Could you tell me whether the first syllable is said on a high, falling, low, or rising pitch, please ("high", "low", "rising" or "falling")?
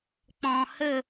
low